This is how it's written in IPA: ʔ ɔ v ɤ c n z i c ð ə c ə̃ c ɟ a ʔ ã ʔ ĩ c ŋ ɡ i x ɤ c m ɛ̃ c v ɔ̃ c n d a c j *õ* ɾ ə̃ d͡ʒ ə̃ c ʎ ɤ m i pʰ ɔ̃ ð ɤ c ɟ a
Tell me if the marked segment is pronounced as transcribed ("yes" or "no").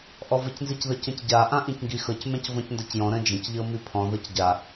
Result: no